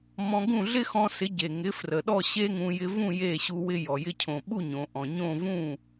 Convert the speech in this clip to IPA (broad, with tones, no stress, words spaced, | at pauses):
mɔ̃˧ɡũ˥˩ɮɪ˥ xɔ̃˧sɪ˩˥ ɟe˩ŋɪ˩˥frə˩ɗɔ˥˩ ɕe˥ŋũ˧ jɪ˧vũ˥˩ je˥˩ɕu˧wɪ˧jɔ˩ jɪ˧cʰõ˩ɓu˥˩ ɲõ˩ʔɔ̃˩ɲõ˥˩ vũ˥˩